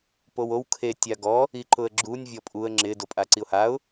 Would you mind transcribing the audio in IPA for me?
p o w o w kʰ e tʲ a ɡ ɔ | i ǃ ʊ ə̯ ɡ͡ǁ u nʲ vʲ ɔ pʼ u ə̯ ŋ͡ǁ ɪ d o pʼ a ǀ i ʊ̯ h a ʊ̯

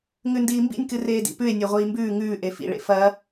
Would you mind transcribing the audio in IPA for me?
ŋ ʉ n d iː m b ḭ nʲ k ɨ r eː d ḭ p ʉ e̯ nʲ e ʁʷ iː m b ʉː ŋ ʉː ʔ e f ḭ ɭ ḛ f ɐ

